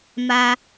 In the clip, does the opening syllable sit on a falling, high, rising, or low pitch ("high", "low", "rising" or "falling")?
high